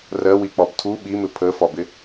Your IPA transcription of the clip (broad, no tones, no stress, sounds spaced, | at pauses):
r ɜ w i k͡p ɒ b tʰ u ɓ i m ɪ pʰ ə f ɒ b ɪ